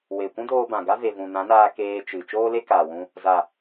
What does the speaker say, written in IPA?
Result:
we˨kʷũ˦doː˧ bã˨ɡa˦ ve˨vũ˨ nã˨˦naː˧ keː˧t͡ʃɨ˨ t͡ʃoː˦le˦ kaː˨wũ˧ | za˨

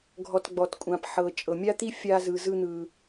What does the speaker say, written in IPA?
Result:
ɡʱɔ˨tɡ͡bɔ˩tkʷʼã˩pħɤ˩ t͡ʃʼɤ˩mʲa˥t̪i˥ fʲa˦zɯ˨zɯ˦n̪ɯ˩

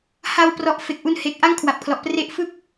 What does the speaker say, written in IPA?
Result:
ha˧wprɔ˨˩ʔ fe˨˩k̚ʔu˧nhe˨˩k̚ ʔa˦˥ŋ kʰwa˨˩p̚kʰlɔ˨˩ʔ pre˦˥ʔfɯ˥˩k̚

